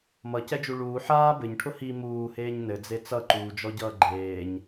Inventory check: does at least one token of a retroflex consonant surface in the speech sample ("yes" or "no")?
yes